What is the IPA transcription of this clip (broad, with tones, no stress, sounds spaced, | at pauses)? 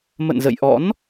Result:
m ə̰˧˨ n z ə̰˧˨ j ʔ ɔ̰˧˥ n